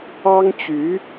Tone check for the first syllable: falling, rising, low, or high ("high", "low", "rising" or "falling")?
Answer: high